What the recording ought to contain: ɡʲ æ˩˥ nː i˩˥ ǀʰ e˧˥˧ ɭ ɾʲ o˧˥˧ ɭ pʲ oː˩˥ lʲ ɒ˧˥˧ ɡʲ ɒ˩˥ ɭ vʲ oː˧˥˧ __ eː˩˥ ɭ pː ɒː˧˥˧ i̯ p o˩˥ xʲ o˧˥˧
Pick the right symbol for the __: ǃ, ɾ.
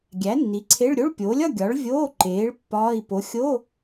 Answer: ǃ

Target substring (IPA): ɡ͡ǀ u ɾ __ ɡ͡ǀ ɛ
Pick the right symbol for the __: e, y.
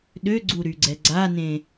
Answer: y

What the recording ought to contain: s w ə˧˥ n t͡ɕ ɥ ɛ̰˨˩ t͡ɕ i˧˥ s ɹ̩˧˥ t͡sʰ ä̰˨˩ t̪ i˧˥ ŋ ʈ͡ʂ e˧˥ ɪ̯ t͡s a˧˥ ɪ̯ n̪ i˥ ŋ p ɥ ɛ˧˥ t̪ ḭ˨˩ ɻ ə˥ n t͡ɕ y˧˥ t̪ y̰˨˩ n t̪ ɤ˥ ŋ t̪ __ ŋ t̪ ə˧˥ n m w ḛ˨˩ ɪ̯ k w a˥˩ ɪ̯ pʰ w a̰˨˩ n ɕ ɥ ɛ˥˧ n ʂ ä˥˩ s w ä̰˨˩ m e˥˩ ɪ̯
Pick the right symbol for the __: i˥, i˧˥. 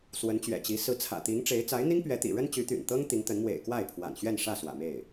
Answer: i˧˥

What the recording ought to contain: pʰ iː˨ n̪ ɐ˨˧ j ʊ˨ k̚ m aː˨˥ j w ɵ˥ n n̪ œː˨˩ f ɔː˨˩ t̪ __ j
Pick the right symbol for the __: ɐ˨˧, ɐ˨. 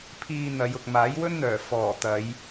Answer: ɐ˨˧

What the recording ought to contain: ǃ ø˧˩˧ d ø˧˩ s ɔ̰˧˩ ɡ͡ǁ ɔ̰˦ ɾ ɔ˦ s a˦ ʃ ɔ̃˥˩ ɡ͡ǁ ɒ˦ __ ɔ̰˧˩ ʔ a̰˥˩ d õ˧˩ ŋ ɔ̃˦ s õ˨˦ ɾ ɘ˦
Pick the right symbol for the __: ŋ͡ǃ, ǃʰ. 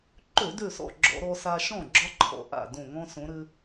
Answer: ǃʰ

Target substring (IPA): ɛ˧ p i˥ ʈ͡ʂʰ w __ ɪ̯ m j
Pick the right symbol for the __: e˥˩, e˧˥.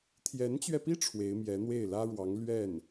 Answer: e˧˥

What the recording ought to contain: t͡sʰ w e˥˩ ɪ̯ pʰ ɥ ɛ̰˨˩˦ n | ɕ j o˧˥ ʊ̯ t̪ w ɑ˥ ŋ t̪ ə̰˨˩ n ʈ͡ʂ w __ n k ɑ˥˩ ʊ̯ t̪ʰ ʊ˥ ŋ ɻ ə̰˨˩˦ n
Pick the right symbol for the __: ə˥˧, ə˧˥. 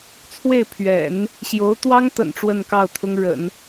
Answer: ə˥˧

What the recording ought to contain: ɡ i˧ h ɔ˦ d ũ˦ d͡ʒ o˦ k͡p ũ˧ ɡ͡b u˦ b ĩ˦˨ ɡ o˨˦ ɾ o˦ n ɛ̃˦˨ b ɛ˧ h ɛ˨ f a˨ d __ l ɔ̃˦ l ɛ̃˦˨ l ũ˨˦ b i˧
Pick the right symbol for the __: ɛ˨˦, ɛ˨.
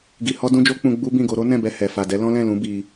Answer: ɛ˨˦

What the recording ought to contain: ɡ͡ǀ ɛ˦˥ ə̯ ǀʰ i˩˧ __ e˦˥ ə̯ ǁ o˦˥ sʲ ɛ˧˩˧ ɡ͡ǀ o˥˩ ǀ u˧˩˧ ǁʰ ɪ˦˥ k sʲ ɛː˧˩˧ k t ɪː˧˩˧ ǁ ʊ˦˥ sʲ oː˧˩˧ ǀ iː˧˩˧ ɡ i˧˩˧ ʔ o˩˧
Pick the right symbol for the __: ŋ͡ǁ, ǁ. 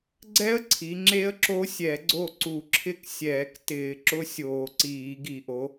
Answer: ŋ͡ǁ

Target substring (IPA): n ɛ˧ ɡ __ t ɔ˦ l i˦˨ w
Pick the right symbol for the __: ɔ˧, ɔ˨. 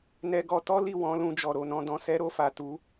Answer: ɔ˧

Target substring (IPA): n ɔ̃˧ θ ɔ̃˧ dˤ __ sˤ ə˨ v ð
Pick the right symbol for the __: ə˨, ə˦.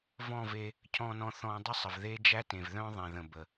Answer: ə˦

